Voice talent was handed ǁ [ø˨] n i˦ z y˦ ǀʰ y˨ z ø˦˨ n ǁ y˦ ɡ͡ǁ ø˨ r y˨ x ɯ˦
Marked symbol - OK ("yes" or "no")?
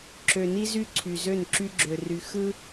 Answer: yes